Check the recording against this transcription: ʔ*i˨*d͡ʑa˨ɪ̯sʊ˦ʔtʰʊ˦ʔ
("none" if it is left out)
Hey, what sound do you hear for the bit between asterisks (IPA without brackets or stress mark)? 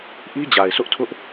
i˦